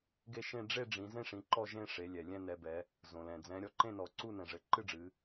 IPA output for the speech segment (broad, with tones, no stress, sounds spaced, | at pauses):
ɡ e˦˨ ʃ ẽ˦˨ ɖ͡ʐ e˦˨ ɖ͡ʐ ĩ˩˧ z ẽ˦˨ ʂ ĩ˩˧ ǃ ɔ˦˨ ʒ ẽ˦˨ ʂ e˩˧ lʲ ɛ˩ lʲ ɛ̃˦˨ n ɛ˩˧ b ɛ˩˧ | z õ˩ l ɛ̃˩ d͡z ɛ̃˩˧ ɾʲ ɔ˩˧ ǃ ẽ˦˨ n ɔ˩˧ ǀ u˦˨ n ɛ̃˩ ʐ ɘ˩˧ ǃ ɨ˦˨ ɖ͡ʐ ɨ˩˧